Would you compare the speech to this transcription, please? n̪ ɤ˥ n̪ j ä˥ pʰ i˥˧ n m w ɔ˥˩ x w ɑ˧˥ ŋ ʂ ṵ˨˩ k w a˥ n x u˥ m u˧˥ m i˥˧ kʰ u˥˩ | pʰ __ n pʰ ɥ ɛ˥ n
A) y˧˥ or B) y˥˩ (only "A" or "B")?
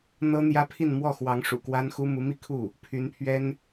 A